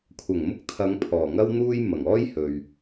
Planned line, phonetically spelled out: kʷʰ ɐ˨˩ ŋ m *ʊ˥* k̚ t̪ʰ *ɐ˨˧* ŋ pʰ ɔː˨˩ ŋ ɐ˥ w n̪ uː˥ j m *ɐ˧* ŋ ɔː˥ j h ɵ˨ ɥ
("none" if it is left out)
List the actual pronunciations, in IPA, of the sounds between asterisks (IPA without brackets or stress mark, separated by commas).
ʊ˥, ɐ˨˧, ɐ˨˩